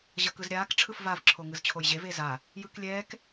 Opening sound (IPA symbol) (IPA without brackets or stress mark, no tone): ʑ